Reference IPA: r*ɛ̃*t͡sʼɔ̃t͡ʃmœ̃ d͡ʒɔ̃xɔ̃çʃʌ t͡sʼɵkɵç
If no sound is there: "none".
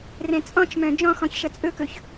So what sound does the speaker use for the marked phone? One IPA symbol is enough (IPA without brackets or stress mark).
ɛ̃